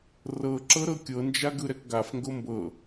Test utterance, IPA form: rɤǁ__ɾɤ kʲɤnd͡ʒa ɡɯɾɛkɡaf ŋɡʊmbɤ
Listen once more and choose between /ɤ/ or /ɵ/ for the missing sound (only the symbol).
ɤ